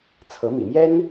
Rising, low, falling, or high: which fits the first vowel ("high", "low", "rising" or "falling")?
rising